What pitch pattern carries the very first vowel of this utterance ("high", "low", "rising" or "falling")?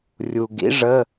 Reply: low